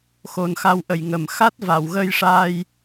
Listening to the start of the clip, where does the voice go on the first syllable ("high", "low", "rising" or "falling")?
low